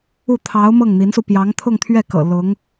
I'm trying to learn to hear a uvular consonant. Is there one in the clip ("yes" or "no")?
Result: no